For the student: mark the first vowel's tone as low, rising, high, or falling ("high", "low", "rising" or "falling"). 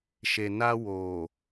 low